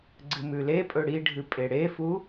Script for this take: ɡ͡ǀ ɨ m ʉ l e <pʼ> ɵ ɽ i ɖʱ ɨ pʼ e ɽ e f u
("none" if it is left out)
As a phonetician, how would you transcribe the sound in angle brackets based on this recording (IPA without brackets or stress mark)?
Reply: pʼ